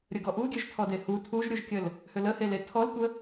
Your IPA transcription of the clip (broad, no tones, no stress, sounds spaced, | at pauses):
ɾʲ ə ɡ ɔ ʔ u ɡʲ ø ʒ tʰ ɔ d e h u tʰ u ʒ ɾʲ u ʒ kʲ ə l | h ʏ l ə h e l e tʰ ɔ l tʷ ə